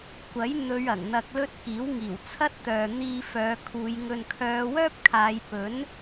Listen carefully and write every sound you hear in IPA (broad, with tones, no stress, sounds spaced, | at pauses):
kʷ ɐ˨˥ j n̪ ɵ˨˧ ɥ ɐ˨˩ ŋ n̪ ɐ˧ k̚ l ɵ˥ t̚ k iː˨˥ w ŋ iː˨˩ w t͡sʰ ɐ˥ t̚ t̪ œː˨ n̪ iː˧ f œː˨˧ kʰ uː˨˧ j ŋ ɵ˧ n kʰ œː˨˧ w œː˥ p̚ kʰ aː˨˧ j p ɵ˨˥ n